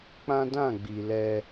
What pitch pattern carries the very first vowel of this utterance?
high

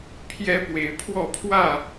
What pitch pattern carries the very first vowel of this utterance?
high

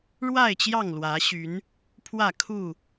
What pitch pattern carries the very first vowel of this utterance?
falling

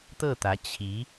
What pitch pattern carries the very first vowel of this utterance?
falling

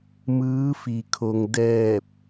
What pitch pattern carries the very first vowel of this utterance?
rising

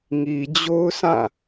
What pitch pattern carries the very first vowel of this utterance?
low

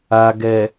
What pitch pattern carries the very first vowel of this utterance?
low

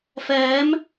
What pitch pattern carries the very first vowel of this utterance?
rising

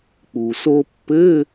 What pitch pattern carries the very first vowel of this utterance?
low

